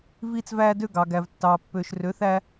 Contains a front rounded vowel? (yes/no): yes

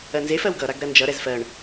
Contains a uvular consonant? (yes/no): no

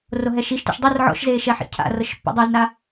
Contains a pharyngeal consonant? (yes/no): yes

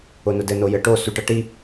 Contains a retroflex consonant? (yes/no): yes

